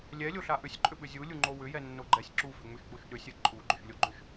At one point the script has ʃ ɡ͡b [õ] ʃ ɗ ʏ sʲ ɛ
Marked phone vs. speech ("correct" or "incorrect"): incorrect